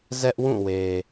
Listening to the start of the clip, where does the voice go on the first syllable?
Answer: high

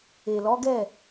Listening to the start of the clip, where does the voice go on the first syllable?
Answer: low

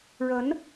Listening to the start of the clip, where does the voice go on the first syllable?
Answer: rising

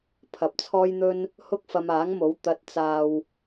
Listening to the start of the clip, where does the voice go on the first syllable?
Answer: low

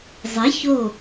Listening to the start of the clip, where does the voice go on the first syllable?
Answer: rising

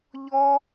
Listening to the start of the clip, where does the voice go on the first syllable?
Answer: high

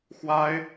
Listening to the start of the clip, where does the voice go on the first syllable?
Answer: high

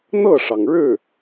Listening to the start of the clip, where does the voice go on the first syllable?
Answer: falling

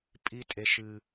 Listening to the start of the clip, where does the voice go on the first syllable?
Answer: high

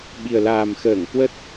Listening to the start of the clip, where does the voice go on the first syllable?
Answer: low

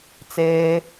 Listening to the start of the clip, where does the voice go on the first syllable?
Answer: low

